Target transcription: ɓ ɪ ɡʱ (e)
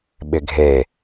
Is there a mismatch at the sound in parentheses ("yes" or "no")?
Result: no